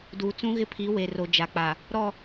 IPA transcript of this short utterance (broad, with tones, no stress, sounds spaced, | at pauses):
d uː˨ t͡s ũ˦ ɣ ɪ˦ pʰ i˨˦ w e˨ r o˨ d͡ʒ a˨ k͡p a˨ | ɾ ɔ˦˨